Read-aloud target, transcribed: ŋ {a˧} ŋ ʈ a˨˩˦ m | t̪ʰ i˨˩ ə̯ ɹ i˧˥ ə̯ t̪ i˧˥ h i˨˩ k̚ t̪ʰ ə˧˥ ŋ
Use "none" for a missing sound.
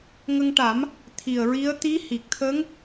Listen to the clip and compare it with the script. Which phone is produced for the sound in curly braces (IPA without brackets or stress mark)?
ə˧